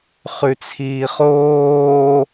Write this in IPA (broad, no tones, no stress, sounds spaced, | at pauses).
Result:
χ ʉ t͡sʰ iː χ oː